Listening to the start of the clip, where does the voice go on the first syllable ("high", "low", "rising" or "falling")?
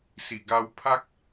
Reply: low